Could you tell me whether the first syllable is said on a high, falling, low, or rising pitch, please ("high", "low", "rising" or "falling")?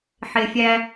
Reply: low